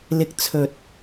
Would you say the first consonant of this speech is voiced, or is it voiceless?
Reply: voiced